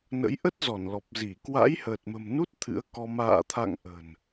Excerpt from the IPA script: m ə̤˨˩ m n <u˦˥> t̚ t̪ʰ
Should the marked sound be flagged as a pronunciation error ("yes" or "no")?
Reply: no